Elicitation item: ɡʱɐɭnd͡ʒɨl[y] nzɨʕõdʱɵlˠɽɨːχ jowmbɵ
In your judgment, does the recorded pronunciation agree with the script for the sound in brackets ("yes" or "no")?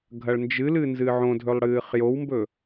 no